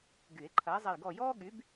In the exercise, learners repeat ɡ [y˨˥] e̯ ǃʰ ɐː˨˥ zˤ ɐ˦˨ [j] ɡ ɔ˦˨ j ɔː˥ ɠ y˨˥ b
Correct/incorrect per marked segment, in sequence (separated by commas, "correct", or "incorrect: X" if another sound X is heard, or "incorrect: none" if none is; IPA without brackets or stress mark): incorrect: y˨˩˦, correct